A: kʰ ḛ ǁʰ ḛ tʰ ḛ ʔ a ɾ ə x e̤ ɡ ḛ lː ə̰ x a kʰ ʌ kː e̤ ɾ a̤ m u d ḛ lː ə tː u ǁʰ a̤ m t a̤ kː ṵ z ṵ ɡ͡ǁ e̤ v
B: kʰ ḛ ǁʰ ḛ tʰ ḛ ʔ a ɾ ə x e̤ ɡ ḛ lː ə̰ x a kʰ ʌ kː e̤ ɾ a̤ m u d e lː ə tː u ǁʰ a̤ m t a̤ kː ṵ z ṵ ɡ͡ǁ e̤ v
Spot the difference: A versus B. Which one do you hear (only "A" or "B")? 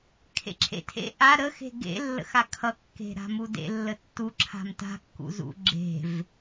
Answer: A